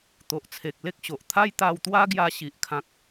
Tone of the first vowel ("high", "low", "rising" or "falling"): low